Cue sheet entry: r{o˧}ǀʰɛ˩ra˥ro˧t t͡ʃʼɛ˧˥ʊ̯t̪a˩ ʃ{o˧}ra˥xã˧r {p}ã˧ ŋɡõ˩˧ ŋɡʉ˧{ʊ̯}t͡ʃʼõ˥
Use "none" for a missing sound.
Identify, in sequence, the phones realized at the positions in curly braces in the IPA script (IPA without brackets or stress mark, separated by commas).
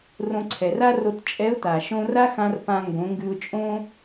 õ˧, õ˧, p, ʊ̯